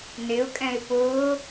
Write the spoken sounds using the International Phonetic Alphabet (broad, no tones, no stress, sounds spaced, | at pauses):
n ɪ ʊ̯ kʼ ɛ̃ ɪ̯ p ʊː